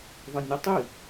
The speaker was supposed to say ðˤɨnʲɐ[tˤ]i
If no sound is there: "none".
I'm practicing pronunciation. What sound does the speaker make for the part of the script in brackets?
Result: tˤ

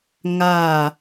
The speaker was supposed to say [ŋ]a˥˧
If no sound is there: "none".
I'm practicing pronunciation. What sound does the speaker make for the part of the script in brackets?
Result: ŋ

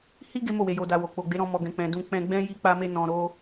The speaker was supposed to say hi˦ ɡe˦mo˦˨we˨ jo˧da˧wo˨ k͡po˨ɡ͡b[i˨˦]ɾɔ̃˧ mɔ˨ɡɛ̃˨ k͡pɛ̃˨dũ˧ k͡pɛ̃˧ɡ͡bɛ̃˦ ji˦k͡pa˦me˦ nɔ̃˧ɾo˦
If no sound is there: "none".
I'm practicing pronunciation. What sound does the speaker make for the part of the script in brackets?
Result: e˨˦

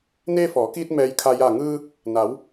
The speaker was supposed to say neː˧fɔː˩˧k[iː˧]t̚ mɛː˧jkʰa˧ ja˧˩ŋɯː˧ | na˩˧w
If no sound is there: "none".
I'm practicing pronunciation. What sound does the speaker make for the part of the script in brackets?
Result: iː˧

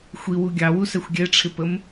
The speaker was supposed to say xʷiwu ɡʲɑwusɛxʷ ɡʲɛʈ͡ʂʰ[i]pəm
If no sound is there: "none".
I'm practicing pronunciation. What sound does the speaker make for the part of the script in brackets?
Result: ɪ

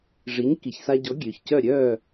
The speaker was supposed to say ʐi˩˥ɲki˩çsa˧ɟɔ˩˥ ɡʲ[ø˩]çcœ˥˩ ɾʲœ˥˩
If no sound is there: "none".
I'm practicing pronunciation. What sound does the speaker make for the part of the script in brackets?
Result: ø˩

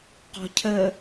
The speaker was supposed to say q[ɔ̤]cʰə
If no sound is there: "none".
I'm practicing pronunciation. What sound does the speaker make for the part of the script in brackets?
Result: ɔ̤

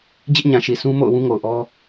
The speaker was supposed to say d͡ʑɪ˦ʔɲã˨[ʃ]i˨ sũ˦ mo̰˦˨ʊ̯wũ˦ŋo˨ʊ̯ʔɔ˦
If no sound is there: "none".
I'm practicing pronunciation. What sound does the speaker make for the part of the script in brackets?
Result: ʃ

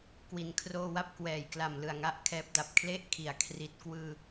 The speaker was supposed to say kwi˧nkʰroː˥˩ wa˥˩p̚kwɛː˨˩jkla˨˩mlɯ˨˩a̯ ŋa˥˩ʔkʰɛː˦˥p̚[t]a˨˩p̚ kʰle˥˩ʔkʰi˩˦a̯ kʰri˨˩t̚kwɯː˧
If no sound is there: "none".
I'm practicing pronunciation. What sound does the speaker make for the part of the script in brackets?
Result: d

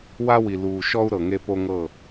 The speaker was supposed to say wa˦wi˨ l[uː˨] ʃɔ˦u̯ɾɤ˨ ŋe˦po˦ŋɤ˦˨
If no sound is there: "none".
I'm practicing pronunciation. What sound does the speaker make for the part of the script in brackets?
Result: uː˨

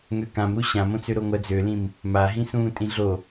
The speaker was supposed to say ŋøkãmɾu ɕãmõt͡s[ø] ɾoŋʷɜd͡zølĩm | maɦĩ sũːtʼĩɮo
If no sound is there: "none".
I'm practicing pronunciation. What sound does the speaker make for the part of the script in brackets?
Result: ø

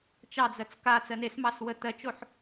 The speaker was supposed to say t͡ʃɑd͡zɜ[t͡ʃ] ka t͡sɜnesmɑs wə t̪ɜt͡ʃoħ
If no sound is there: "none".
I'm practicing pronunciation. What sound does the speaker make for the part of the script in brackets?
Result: t͡s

